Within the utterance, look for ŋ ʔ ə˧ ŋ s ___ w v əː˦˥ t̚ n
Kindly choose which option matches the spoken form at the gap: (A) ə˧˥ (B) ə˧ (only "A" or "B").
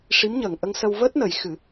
B